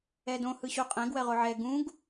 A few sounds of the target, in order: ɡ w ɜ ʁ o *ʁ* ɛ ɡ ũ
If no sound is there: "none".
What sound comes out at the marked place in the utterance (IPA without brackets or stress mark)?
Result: ʕ